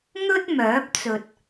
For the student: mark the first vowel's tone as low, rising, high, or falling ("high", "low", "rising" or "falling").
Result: high